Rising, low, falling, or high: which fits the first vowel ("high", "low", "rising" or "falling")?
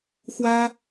high